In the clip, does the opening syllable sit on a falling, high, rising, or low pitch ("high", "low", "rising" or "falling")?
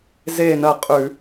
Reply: falling